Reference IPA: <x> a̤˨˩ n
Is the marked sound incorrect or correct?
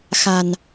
correct